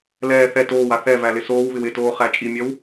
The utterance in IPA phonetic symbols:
l ɛː θ ɛ t oː w a θ ɛ v æ l ɪ s oː w β ɪ w ɪ t oː χ æ t͡ʃʼ i mʲ ɜ w

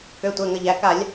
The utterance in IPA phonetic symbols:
k ø˩˧˩ tʷ ɛ˩˧˩ ŋ ə˩˧˩ ʎ æ˩˧˩ k a˧˩˧ lʲ

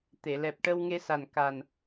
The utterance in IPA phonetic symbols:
t̪ e˨˩˨ l ɛ˨˩ p̚ ʈ ə˧ w ŋ e˧ s a˨˩ n k a˨˩ n

